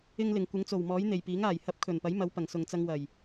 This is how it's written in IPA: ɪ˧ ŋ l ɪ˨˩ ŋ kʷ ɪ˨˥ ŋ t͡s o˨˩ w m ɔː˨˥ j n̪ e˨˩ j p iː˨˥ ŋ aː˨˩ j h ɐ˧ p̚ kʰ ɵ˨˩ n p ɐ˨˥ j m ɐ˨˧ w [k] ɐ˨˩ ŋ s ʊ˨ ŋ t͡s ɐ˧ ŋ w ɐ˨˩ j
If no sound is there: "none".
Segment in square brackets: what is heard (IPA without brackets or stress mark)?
p